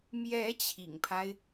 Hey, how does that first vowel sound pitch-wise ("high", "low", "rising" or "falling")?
rising